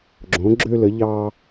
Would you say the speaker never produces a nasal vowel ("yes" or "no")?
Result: no